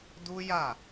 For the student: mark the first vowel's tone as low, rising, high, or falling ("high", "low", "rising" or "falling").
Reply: high